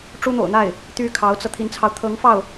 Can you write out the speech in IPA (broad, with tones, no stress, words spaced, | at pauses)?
ʈ͡ʂu˥n̪o̰˨˩ʊ̯n̪a˥˩ɪ̯ | t̪y˥kʰɑ˧˥ʊ̯t͡sɤ˧ t̪ʰi˧˥nt͡sʰɑ˧ʊ̯ t̪ʰɤ˧˥ŋfɑ˥˩ʊ̯